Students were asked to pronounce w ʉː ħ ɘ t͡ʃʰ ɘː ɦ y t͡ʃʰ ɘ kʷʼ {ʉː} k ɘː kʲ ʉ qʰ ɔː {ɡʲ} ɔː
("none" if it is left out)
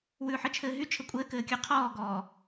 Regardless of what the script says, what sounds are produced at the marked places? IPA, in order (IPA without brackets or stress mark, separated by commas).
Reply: ɘː, ɡ